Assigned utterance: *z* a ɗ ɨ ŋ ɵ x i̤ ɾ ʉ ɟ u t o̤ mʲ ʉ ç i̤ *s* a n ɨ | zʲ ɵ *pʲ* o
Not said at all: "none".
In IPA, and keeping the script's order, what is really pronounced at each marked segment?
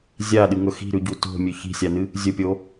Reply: zʲ, sʲ, pʲ

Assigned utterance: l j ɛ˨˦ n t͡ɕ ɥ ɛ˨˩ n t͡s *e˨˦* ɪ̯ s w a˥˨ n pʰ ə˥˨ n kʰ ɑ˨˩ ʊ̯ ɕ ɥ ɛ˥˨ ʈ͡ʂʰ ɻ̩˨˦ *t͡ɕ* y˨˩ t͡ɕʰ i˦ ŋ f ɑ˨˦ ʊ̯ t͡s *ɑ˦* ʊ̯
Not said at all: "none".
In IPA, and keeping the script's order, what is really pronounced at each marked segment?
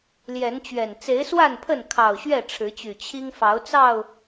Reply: e˨˦, t͡ɕ, ɑ˥˨

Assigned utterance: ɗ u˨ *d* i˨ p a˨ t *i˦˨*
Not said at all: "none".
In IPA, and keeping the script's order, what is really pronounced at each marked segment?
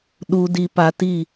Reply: d, i˦˨

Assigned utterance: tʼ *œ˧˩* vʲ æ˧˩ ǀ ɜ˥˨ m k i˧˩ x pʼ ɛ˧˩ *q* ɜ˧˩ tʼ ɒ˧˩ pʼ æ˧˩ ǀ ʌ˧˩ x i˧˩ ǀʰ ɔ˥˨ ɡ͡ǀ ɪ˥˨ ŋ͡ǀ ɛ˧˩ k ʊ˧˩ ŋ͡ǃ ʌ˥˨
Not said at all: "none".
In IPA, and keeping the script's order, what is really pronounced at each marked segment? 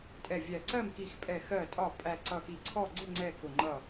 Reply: ɛ˧˩, x

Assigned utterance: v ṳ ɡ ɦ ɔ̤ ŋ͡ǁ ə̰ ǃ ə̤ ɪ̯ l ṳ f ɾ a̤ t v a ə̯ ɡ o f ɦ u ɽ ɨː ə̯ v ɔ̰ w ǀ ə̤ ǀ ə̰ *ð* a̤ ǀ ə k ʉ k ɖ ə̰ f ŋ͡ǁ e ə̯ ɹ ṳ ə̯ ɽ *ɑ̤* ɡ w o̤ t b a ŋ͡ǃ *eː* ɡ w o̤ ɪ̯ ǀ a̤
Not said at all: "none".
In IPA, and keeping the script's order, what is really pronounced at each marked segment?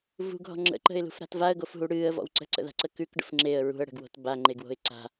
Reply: ð, ə̤, e

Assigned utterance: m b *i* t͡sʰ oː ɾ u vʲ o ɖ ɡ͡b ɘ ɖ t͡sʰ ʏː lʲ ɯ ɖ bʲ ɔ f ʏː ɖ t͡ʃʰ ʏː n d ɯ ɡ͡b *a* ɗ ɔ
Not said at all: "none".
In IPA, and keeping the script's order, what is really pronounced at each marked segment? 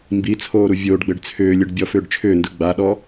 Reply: i, a

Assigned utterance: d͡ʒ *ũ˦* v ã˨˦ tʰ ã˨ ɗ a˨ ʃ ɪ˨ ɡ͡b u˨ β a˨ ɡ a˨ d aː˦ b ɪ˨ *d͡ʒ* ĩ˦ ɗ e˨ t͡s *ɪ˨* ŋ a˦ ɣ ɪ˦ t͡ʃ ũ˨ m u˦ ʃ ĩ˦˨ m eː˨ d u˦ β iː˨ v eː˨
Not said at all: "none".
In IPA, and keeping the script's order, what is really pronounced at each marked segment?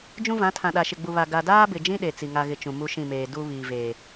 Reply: ũ˦, d͡ʒ, i˨

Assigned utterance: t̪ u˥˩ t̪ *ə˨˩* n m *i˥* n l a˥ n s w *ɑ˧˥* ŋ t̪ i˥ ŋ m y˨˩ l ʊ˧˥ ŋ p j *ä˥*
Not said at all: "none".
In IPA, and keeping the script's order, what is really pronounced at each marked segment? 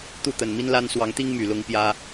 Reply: ə˨˩, i˥, ɑ˧˥, ä˥

